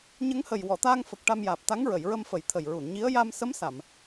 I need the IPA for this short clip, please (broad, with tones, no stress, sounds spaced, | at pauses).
ɲ ə˧˥ ŋ h ə˨˩ j w ɔ˨˩˨ t̪ aː˧ ŋ f ə˨˩ k̚ ʈ a˧ m j aː˨˩ p̚ t̪ a˧˥ ŋ ɹ ə˨˩˨ j ɹ ə˧ m f ə˨˩˦ j t̪ʰ ə˨˩ j ɹ u˨˩˨ n ɲ i˧˥ ə̯ j a˧ m s ə˧˥ m s a˨˩˨ m